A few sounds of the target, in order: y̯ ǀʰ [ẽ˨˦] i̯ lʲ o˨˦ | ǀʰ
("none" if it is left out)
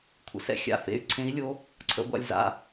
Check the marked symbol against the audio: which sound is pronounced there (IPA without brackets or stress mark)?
ẽ˨˦